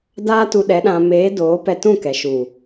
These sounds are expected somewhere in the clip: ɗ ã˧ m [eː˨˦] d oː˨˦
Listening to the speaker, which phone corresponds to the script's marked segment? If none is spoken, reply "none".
eː˨˦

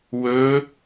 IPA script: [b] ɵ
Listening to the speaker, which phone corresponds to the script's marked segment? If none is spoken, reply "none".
w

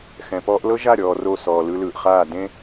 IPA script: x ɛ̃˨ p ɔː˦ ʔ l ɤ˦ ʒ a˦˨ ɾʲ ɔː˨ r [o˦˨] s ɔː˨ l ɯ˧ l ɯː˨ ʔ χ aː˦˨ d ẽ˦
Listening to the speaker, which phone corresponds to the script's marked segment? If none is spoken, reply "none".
o˦˨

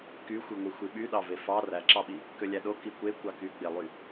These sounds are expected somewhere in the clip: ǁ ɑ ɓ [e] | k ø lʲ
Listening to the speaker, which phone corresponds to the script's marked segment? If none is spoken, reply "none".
i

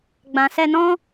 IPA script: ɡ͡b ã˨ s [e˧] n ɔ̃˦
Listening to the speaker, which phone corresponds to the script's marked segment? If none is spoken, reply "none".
ɛ˧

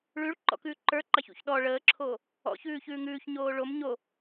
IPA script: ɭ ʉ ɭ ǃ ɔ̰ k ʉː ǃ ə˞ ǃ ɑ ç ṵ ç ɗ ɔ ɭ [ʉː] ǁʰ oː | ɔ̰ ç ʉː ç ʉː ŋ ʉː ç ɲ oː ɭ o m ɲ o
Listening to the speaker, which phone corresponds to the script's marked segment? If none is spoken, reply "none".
əː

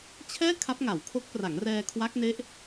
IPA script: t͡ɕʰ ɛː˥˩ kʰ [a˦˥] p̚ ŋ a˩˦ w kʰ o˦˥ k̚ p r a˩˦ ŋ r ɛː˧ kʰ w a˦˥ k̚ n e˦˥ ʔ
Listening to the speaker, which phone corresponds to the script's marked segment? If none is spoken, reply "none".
a˦˥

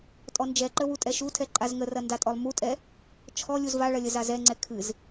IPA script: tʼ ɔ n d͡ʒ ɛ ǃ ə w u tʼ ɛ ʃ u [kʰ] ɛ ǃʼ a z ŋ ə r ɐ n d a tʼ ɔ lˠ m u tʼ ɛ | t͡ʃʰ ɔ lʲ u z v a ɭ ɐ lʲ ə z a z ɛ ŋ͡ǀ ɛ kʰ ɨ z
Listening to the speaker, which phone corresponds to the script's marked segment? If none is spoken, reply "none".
tʰ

